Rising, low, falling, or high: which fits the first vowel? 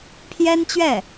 high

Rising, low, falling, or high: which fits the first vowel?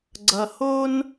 low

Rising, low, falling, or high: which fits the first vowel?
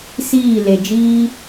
falling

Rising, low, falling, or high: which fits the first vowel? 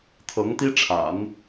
rising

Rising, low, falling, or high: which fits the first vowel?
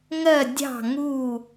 falling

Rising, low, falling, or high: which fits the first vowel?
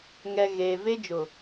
low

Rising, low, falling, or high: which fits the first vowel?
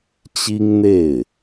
high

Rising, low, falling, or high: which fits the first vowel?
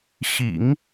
low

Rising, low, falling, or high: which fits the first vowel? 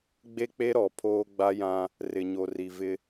high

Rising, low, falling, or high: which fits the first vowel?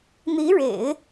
rising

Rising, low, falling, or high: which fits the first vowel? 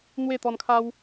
falling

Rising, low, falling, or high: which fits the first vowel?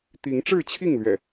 rising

